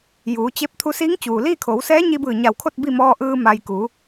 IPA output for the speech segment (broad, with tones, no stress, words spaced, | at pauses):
juː˩˧t͡ɕe˧˥p̚ t̪ʰu˧siː˧˥ŋt͡ɕuː˩ liː˥˨kʰoː˩˧wsɛː˧˥ɲi˧ bɯː˧˩ɲa˧˩wkʰo˥˨t̚ bi˥˨ mɔː˧ʔɯː˧ ma˧j kuː˩˧